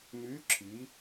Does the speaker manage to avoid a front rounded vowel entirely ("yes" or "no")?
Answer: no